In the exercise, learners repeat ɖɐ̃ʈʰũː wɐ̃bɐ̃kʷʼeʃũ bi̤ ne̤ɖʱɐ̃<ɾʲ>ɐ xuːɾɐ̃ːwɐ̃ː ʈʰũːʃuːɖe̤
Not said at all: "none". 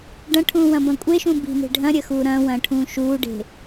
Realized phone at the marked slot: ɾʲ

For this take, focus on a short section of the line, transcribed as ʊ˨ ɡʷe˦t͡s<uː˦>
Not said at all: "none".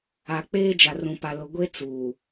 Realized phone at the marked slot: uː˨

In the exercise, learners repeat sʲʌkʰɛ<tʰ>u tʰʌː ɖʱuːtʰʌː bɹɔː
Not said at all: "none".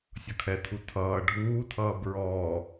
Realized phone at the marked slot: tʰ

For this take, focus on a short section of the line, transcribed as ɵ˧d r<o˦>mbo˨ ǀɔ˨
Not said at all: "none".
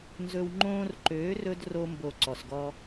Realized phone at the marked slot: o˧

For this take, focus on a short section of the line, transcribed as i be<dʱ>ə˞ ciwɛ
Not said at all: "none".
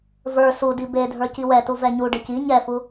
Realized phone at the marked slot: dʱ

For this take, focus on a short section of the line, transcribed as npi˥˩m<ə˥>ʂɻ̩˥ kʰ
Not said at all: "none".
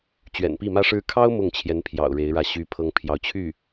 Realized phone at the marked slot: ä˥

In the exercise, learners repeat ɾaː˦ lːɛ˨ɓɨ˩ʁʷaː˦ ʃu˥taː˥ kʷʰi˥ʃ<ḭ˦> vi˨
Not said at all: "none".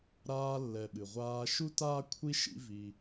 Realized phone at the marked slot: ḭ˦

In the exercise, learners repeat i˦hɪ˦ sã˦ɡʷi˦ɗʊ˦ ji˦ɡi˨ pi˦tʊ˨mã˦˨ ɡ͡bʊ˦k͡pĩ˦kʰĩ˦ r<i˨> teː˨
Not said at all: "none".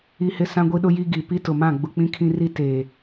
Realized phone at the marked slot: i˦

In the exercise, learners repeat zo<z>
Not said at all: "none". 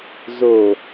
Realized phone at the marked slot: none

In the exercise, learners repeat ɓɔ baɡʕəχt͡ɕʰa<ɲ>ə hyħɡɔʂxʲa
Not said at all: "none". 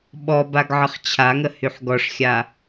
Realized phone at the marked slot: ŋ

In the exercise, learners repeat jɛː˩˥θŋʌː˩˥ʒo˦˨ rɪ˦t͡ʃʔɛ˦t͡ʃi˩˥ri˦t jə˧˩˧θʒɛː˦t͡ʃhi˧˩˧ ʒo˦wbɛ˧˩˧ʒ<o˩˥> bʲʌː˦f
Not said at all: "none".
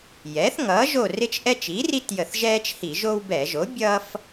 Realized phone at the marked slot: o˩˥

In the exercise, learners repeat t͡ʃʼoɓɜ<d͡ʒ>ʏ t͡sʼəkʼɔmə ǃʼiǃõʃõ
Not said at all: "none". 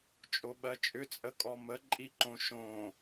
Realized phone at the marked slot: t͡ʃʼ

